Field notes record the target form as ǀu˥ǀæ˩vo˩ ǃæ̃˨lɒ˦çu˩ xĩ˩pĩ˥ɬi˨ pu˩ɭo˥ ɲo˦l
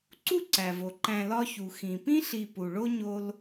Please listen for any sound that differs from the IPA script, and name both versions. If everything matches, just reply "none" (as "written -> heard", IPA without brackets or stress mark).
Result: none